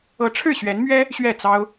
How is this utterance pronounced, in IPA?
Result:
ɤ˧˥ ʈ͡ʂʰ ɻ̩˥˩ ɕ ɥ ɛ˧˥ n m ɥ ɛ˥ | ɕ ɥ ɛ˥˩ t͡s ɑ˥ ʊ̯

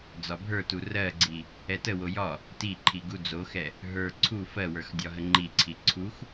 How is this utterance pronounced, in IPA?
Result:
d͡z ɒ bʱ ə˞ t u r ɜ ɡ͡ǀ i | ɛ t ə w o j ɒ | t i ǃʰ i ɡ u d͡z o x ɛ | ɦ ə˞ ǀʰ u f ɜ w ə˞ x dʲ ɒ ɦ ə ŋ͡ǃ i ǀʰ i ǀʰ u x

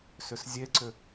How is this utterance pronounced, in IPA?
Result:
s ʏ s zʲ e ǀ ʏ

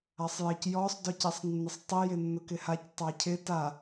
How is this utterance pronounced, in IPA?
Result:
a sˤ j ɪ c j ɔ sˤ d ɔ c ɛ sˤ nː ɪ sˤ tˤ i j ɪ nː ʊ k ɪ h a c tˤ a cʰ ɪ t a

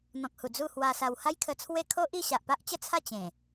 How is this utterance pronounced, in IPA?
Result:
n̪ ɔ̃˨ k̚ h u˨˩ d͡z u˥˧ h w a˧ s a˧ w h a˦ j kʰ ə˧ t͡sʰ w e˥˧ kʰ o˦ ʔ i˥˧ ɕ a˨ ʔ p a˦ ʔ t͡ɕ ə˦ t͡sʰ a˥˧ t͡ɕ ẽ˨˩

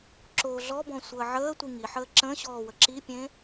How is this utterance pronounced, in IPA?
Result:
ǁ oː ɮ ɔ b ɔ̃ sʷ əː ʕ əː tʷ i ŋ i ħ əː ǁ ə̃ ɕ ɔː w ə ǁ i pʲ ẽ

